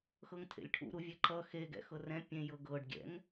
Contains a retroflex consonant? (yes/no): yes